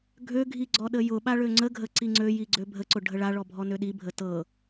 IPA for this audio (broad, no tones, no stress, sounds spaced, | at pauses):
ɡʱ ø ɡʱ i ɡ͡ǀ ɔ ɗ ə j ʊ ɓ a ɭ ø ŋ͡ǀ ə ɡʱ ə ǀ i ŋ͡ǀ ø j i ɡ͡ǀ ø bʱ ə ǀ ʊ ɖʱ ə ɭ a ɭ ɔ bʱ ɔ n ø ɗ i bʱ ə t ɤ